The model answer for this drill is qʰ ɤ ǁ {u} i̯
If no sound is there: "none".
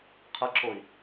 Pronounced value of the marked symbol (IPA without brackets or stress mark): o